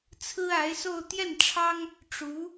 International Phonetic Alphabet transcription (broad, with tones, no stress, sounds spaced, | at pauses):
t͡sʰ ɹ̩˥ a˧˥ ɪ̯ s o˥˧ ʊ̯ t̪ j ɛ˥˩ n ʈ͡ʂʰ ɑ˥ ŋ | ʈ͡ʂ u˧˥